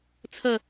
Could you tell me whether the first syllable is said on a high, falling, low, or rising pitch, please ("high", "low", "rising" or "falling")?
falling